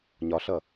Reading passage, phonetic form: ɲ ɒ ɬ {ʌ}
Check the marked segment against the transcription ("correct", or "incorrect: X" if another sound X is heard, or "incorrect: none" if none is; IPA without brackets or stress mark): correct